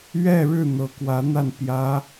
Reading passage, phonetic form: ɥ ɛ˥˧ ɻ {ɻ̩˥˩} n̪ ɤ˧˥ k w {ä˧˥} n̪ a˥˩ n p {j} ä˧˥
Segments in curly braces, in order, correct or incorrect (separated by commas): correct, correct, correct